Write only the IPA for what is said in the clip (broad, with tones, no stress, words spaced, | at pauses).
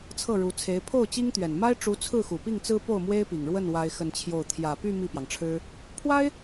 t͡sʰɤ˥˩ɻu˧˥t͡sʰe˧˥ɪ̯ pʰo˥˩ʊ̯t͡ɕi˥ŋt̪ɥɛ˨˩n ma˥ɪ̯ʈ͡ʂu˧˥ t͡sʰɹ̩˥˩xu˨˩pi˥˩ŋt͡sɹ̩˥ po˥˩ʊ̯mwe˥ɪ̯pi˨˩ŋɻwə˥˩n wa˥ɪ̯xə˥˧nt͡ɕʰjo˥˩ʊ̯ t̪ʰjä˨˩py˥˧ mi˥˩pjɑ˩ŋʈ͡ʂʰɻ̩˥ | pʰwa˥ɪ̯